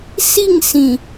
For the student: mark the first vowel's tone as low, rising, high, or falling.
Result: falling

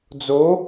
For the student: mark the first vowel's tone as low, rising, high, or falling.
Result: rising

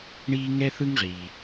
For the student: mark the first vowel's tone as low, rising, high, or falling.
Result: high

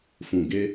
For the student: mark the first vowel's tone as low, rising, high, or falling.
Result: low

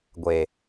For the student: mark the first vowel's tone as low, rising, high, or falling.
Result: low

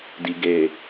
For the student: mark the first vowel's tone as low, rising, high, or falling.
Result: low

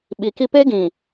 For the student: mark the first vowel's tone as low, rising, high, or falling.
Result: low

